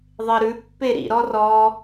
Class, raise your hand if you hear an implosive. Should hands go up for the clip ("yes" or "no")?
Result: no